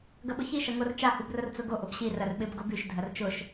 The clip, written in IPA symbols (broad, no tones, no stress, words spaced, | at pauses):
ɡɐɓʊçi ʃɐŋort͡ʃa hubrʊrt͡sʊɡo ʔʊbɕi rɐrɓɪb ɡobyʃ dʱɐrt͡ʃʊʃ